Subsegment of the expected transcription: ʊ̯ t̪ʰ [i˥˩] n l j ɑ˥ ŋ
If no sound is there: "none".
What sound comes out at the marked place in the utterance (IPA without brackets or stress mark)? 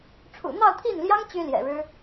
i˥˩